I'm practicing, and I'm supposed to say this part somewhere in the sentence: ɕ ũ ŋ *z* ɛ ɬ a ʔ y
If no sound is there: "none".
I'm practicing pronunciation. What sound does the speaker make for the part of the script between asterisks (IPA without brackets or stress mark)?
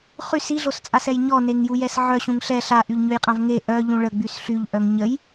ɬ